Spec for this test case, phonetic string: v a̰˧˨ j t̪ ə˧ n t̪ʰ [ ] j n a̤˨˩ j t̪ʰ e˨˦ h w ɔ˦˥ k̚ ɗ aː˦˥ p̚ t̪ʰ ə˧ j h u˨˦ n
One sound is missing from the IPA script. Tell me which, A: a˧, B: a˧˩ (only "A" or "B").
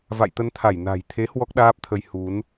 B